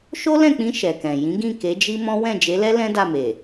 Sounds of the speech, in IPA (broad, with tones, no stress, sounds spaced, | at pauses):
ʃ o˦ l ɛ̃˦˨ k͡p ĩ˧ ʃ ɛ˨ k ɛ̃˨ j ĩ˨˦ ɡ ĩ˦˨ k e˨˦ d͡ʒ i˦ m ɔ̃˦ w ɛ̃˦˨ d͡ʒ e˨˦ l ɛ˦ l ɛ̃˦ d a˦˨ m e˨